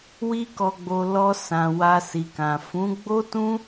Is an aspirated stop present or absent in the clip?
absent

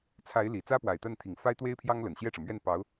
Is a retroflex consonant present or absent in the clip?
present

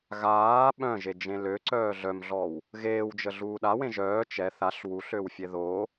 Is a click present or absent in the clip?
present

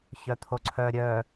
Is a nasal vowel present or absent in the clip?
absent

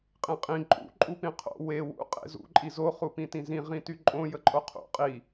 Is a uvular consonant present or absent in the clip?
present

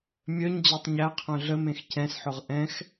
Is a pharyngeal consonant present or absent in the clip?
present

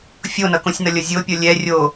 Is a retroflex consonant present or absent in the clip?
absent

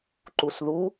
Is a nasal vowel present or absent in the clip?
absent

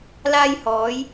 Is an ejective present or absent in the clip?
absent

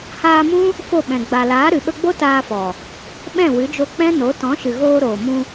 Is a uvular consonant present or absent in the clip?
absent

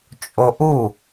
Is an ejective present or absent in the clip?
present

